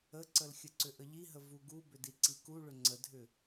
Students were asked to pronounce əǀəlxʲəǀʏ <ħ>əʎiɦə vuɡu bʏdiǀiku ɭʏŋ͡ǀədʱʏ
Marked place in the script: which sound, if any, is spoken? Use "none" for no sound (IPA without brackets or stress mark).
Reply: ʔ